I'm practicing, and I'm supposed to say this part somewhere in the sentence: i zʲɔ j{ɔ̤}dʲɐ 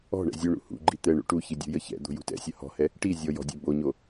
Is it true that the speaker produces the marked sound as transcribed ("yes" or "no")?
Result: yes